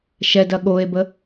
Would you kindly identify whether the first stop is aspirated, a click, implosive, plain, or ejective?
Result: plain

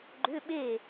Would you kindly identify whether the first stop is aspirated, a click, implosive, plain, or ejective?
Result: click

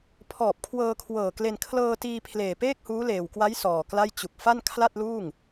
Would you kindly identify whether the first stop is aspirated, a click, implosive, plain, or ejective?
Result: aspirated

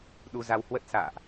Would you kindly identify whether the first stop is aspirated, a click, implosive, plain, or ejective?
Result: implosive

